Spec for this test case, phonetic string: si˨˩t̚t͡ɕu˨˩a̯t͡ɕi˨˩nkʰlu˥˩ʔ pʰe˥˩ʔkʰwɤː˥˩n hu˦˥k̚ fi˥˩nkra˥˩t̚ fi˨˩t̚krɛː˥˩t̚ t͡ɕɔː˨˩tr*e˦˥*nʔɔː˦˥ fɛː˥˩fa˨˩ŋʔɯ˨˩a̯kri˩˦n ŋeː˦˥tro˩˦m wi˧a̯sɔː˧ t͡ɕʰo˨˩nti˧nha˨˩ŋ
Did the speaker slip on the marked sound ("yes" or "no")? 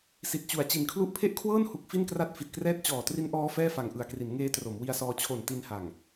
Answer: yes